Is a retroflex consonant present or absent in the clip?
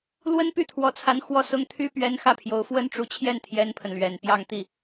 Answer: present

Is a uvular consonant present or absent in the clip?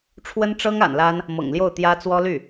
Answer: absent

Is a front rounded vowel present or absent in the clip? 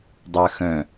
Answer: present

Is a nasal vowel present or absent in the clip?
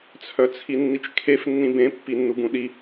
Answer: present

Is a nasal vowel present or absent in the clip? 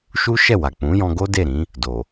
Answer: present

